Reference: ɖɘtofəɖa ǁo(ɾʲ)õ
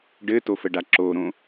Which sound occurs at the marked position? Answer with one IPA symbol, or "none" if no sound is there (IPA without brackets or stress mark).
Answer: ɾ